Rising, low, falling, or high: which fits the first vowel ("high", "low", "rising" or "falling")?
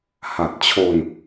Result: low